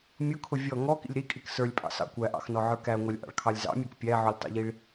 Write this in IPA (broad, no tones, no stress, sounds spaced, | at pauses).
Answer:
mʲ ʊ kʰ ʊ vʲ ɔ ŋ ɔ k ḭ lʲ ɾ i kʼ i k s ə˞ lʲ pʼ ɑ̰ s ɑ̰ kʷ æ ʔ ɑ̰ x n ɔ ʕ ə˞ k æ ŋʷ ɑ lʲ ʔ ɑ̰ ɭ kʰ ɑ lʲ z ɑ̰ mʲ ə˞ k pʲ æ ʕ ʊ lʲ tˤ ḭ ʎ i ɭ